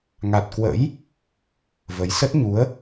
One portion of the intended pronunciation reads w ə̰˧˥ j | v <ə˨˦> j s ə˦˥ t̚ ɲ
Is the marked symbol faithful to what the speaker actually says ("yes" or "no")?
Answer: yes